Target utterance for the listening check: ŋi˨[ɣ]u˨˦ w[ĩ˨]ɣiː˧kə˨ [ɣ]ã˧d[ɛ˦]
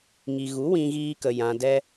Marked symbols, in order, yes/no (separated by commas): yes, no, no, yes